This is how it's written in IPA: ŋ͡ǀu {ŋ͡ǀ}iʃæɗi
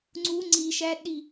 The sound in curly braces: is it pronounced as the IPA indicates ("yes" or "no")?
yes